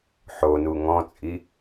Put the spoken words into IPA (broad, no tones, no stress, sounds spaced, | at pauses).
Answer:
ħ o n u ŋ ɔ̃ t͡sʼ i